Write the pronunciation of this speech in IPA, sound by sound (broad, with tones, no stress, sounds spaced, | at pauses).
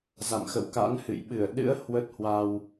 z a̰˧˨ m x ə̰˧˨ w k a̰˧˥ n h ɨ̰˧˨ j ɓ ɨ˧˩ ə̯ ɗ ɨ̰˧˥ ə̯ h w ə˦˥ t̚ h w a˧ w